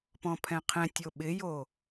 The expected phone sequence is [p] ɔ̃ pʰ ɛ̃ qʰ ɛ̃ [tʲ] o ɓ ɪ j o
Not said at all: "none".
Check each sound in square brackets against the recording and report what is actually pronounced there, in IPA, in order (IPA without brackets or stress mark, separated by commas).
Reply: p, tʲ